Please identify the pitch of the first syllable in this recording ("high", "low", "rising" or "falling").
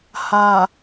low